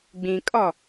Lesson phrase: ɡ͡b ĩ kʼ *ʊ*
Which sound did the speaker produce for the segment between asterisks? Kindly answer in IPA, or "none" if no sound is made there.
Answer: ɔ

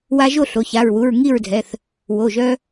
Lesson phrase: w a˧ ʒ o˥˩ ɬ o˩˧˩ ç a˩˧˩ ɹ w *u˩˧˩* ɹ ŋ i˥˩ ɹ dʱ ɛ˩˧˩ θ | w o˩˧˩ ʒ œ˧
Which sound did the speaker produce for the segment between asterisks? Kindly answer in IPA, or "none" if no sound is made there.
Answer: u˩˧˩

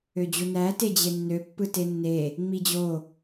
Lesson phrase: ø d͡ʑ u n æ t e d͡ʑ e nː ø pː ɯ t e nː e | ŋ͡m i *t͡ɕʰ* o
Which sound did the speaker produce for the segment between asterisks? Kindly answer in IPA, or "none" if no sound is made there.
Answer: d͡ʑ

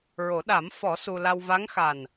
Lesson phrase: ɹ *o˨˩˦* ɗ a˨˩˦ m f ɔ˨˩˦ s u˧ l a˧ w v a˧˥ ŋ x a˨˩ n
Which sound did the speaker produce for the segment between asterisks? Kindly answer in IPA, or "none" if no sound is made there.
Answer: o˨˩˦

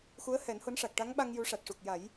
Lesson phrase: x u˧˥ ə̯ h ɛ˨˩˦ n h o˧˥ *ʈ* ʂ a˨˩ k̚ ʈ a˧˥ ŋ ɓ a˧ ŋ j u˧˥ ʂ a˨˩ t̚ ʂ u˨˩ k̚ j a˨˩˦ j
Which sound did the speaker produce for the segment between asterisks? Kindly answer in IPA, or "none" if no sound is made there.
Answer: n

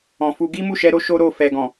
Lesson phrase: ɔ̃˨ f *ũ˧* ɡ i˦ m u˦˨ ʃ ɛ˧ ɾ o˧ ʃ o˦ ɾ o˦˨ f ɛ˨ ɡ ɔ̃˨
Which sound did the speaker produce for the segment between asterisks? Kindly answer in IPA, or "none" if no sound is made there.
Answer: u˧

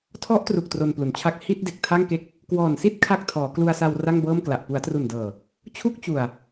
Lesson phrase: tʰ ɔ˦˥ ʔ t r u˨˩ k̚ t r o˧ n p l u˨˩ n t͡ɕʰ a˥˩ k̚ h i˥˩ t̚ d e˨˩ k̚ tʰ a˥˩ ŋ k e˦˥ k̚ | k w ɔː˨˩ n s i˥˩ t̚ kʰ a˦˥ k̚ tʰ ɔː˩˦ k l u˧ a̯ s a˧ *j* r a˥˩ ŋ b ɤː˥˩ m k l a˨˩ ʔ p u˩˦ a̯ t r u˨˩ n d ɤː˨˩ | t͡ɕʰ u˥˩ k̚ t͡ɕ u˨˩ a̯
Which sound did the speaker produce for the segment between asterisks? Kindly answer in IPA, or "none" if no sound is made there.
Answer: w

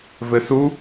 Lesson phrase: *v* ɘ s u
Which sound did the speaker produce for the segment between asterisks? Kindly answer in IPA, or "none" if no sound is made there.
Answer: v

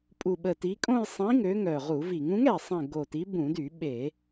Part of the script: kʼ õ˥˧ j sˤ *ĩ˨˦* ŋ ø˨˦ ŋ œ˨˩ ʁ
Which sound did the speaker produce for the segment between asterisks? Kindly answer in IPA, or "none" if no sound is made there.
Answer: ĩ˨˦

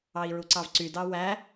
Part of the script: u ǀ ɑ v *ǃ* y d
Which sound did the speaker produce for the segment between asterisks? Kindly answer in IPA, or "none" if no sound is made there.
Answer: ǀ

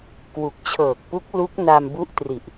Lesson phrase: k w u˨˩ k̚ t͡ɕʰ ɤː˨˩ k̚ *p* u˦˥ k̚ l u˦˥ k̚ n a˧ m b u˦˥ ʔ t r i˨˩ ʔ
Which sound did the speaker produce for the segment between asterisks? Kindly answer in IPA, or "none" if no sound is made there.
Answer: p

